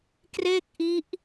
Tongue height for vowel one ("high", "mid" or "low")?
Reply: mid